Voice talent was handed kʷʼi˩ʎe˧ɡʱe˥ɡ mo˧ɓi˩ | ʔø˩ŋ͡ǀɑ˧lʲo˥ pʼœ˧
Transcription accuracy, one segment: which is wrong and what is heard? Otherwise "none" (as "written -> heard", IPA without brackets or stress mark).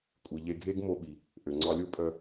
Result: none